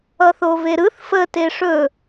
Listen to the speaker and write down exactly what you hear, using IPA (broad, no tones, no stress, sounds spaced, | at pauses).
ʌ θ o v e ɾ ɯ θ f ə t e ʂ ɵ